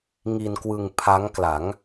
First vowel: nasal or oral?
oral